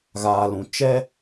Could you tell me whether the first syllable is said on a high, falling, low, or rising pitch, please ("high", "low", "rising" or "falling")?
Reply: low